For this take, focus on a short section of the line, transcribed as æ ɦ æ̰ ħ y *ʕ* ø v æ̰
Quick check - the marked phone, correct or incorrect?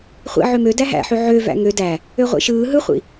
correct